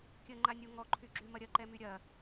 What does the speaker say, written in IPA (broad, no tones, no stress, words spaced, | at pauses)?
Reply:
kʲəŋ͡ǃanʲo ŋɔǃʰyɡ͡ǁymɐ ɾʲɐǃɛmy ɾʲɐ